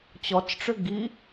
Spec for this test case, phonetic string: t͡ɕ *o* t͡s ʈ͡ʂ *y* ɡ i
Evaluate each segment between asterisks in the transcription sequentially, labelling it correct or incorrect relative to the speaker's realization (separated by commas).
incorrect, incorrect